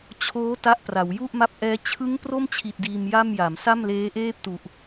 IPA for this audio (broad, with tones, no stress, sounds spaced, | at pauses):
t͡ɕʰ oː˦˥ t a˦˥ ʔ p r a˩˦ w j u˥˩ ʔ m a˦˥ p̚ ʔ ɛː˦˥ t͡ɕʰ ɯ˦˥ ŋ p r o˥˩ m t͡ɕʰ i˨˩ t̚ d iː˧ m j a˥˩ m j a˩˦ m s a˥˩ m l eː˦˥ ʔ eː˥˩ p̚ t u˨˩ ʔ